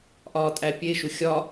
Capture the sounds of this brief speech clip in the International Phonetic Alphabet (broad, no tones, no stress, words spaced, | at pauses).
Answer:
ʔɒːtʼæpʲeʃu xʲɒ